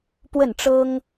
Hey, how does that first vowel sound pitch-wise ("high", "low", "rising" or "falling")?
falling